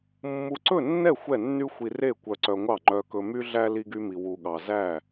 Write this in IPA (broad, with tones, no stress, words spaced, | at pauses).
mːu˧ǀɵ˥˨nːɛ˥˨ xʷɛ˥˨nːy˥ xʷi˧re˥˨ kʷœ˧ǀœ˧ŋʷɑ˥˨ ŋ͡ǃœ˧kɵ˧ my˥ɮæ˥ li˥ɡy˥mi˧ wu˧ɠɑ˧ zæ˥˨